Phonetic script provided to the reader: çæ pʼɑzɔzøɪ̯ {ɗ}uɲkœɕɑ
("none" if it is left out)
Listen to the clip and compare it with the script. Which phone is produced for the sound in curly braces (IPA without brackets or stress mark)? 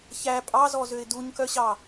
d